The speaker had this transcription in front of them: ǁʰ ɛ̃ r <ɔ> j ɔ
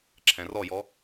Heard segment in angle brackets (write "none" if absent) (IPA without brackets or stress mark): ɔ